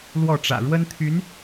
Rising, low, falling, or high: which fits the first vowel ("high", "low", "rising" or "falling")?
falling